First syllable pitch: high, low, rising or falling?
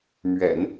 low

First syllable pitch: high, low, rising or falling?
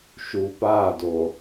low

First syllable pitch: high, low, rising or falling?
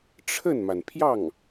falling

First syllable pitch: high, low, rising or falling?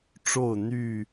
falling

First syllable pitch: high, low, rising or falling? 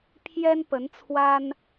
high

